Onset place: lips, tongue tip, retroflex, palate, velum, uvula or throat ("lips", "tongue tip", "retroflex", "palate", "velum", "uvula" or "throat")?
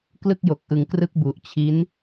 velum